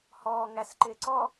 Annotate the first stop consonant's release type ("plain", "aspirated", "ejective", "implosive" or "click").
click